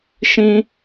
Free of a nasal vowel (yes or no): no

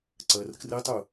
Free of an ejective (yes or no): yes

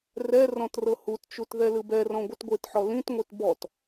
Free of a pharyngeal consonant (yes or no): no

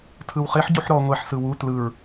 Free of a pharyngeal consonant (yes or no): no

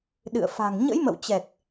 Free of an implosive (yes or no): no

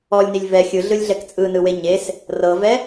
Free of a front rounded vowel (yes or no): yes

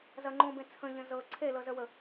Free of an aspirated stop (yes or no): no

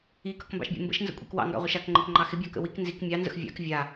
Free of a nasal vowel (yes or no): yes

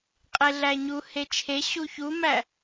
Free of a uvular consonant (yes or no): no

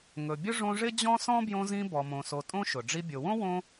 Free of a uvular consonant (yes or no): yes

